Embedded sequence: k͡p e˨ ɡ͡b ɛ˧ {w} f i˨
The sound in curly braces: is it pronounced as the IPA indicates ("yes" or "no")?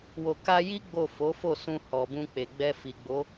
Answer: no